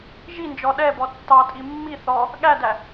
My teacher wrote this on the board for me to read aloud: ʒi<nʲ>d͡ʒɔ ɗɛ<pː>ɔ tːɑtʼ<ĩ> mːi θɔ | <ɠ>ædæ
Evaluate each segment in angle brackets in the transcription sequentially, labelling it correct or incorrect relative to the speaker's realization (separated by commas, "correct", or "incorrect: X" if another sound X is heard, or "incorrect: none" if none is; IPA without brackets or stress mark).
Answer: incorrect: n, incorrect: b, incorrect: i, correct